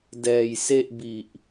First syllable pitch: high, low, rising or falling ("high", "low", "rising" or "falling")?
low